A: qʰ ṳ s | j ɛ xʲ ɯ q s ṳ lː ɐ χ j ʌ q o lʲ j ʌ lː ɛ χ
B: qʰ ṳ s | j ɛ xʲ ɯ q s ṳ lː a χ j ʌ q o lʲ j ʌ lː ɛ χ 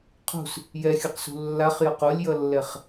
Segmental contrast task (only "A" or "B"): B